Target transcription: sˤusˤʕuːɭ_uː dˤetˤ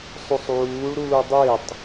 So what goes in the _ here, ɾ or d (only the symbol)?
ɾ